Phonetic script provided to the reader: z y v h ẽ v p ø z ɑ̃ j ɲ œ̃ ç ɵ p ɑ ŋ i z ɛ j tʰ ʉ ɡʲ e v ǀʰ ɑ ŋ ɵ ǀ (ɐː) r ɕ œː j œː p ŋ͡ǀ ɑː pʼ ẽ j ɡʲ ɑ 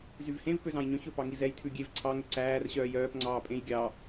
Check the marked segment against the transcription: incorrect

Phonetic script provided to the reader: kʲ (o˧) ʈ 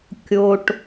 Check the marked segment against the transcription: correct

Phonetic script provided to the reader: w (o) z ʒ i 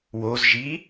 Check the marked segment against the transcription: correct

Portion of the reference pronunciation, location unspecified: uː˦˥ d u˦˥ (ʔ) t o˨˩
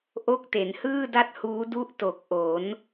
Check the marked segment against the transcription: correct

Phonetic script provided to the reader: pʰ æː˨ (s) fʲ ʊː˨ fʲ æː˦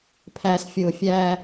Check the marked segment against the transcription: correct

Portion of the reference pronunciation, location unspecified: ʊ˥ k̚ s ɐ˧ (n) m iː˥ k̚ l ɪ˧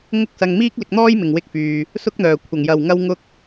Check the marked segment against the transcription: incorrect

